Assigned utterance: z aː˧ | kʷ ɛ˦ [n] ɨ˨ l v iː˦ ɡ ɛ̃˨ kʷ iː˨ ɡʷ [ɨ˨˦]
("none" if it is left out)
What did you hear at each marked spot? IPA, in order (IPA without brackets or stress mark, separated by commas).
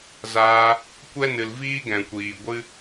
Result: n, ɨ˦